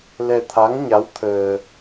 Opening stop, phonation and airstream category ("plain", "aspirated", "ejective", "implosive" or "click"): aspirated